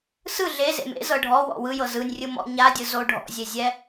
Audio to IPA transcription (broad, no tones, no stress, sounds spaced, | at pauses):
s ɯ ɮ e z ḛ m ḛ z ɤ ɖʱ ɔ w ɔ̰ w ɯ j ɤ z ɯ nʲ rʲ ɯ m ɔ̰ ɲ a dʲ ɯ z o ɖʱ ɔ̰ zʲ e zʲ ɛ